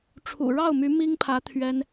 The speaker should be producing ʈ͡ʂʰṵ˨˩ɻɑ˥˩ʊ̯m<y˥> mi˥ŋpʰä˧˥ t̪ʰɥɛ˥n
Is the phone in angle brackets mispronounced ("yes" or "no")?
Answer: yes